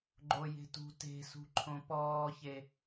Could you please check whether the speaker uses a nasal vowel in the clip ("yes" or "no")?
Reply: yes